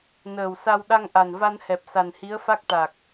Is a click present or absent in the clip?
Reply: absent